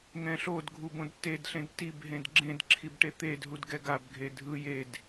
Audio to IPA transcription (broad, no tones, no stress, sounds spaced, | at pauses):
ŋ ɛ̃ ɬ o d ɡʱ u b õ d t e d ɬ ẽ d t i b ɦ ẽ d ɡ͡ǁ ẽ d ǁʰ i b ʈ e t̪ e d ɦ u d ɡ ɛ ɡ a b ɡʱ e dʱ ɯ j e d